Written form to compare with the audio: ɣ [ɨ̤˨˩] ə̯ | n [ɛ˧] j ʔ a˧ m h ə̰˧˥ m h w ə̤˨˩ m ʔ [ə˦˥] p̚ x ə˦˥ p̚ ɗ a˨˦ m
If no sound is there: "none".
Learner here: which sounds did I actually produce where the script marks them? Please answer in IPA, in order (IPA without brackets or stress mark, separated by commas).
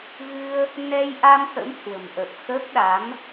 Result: ɨ˧, ɛ˧, ə˨˩